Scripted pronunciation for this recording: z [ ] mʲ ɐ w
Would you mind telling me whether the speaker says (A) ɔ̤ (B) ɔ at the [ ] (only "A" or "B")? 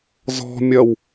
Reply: A